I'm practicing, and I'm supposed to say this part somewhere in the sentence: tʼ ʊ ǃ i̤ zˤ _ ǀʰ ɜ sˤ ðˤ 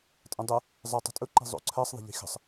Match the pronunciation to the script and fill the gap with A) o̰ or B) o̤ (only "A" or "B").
A